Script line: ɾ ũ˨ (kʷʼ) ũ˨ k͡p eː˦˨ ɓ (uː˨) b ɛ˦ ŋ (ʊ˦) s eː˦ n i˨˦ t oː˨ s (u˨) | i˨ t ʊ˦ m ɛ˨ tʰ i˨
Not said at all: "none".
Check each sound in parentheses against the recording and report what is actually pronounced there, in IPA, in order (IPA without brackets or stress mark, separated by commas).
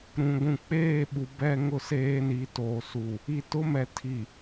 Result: ɡʷ, u˨, ʊ˦, u˨